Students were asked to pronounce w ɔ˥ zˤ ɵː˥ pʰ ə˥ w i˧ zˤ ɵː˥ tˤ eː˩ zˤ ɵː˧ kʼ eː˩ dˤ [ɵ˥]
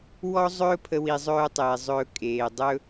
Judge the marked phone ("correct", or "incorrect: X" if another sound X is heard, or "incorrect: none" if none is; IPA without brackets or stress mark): correct